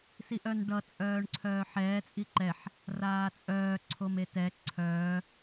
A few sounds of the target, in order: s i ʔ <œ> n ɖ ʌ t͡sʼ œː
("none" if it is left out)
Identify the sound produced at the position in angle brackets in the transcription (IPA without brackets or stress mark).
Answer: œ